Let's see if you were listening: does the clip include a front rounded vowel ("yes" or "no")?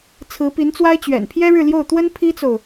no